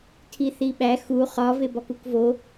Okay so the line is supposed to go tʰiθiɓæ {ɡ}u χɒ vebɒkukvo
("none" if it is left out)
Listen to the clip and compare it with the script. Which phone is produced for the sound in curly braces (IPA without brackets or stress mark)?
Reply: x